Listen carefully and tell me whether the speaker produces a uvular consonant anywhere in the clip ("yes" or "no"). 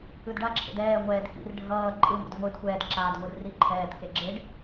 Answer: no